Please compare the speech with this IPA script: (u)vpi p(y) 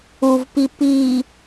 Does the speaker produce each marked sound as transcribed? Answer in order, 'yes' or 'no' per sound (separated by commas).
yes, no